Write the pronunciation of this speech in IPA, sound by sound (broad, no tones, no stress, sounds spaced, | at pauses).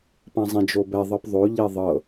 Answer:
p ã zˤ ẽ d͡ʒ o b ɛ ðˤ ɤ p ðˤ o ʎ e ðˤ ɤ